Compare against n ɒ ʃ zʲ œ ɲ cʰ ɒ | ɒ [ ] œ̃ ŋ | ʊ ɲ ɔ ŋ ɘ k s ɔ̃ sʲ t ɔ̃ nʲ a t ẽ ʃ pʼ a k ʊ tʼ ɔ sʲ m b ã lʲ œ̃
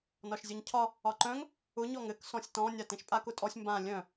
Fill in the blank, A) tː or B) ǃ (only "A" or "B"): B